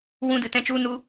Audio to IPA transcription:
w ũ˦ d ɨ˧ t ɛ̃˦ t͡ʃ u˦ n u˦

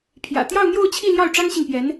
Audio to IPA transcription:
pʰ j ä̰˨˩ t̪ j ɑ˥˧ ʊ̯ n̪ j o˥˧ ʊ̯ t͡ɕʰ i˥˧ l j ɑ˥˩ ʊ̯ ʈ͡ʂ ɑ˥ ŋ ɕ i˨ ŋ p j ɛ˧˥ n

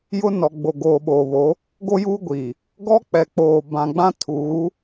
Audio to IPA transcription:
j ʊ˦ n ɔ˨ ɡ͡b o˨ ɡ oː˨ ɓ oː˨ β o˨˦ | ɡ o˦ j uː˦ ɡʷ iː˨ | ɡ ɔ˦ k͡p ɛ˨ k͡p oː˨ b ã˨ ɡ͡b ã˦ tʰ uː˨˦

